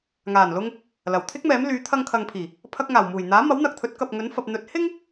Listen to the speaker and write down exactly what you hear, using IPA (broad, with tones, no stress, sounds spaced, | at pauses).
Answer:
ŋ aː˨˩ n l ʊ˧ ŋ | l ɐ˨˩ w t̪ʰ ɪ˥ k̚ m ɛː˨˥ m l yː˨˥ t̪ʰ ɐ˧ ŋ kʰ ɐ˨ ŋ pʰ iː˨˩ | pʰ ɐ˧ k̚ ŋ aː˨˩ w m uː˨˩ j n̪ aː˨˥ m ɐ˨˥ w n̪ ɐ˨ k̚ t̪ʰ ɵ˨˥ t̚ k ɐ˨ p̚ ŋ ɵ˨˥ n f ɐ˨ p̚ n̪ ɵ˨˥ t̚ h ɪ˥ ŋ